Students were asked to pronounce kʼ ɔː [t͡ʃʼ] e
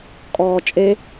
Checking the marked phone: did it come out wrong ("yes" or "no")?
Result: no